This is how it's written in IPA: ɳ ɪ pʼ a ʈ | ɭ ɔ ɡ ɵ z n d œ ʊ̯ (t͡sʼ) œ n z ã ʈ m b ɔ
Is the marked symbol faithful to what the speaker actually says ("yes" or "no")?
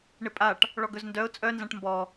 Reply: yes